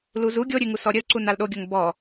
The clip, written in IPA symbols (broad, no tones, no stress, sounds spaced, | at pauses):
l u z u ɡʲ o ɾʲ ʉ ŋ u s ɔ ɾʲ ɵ z ǀ u n a l ɗ o ɡʲ o ŋ b ɔ